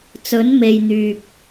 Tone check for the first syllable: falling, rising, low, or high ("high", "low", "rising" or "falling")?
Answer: rising